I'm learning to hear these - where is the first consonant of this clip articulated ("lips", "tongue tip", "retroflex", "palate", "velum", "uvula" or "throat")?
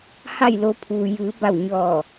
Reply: throat